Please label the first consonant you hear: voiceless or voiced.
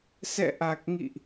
voiceless